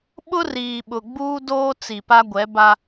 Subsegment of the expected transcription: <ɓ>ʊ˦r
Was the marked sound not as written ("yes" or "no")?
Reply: no